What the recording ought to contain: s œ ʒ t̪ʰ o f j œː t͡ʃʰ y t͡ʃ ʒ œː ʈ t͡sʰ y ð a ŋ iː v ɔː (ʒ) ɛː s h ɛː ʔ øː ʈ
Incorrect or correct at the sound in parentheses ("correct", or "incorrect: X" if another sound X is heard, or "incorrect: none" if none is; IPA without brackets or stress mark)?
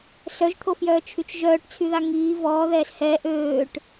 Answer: incorrect: ð